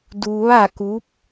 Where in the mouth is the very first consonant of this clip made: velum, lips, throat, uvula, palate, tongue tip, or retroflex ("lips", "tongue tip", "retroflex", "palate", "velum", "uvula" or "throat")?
tongue tip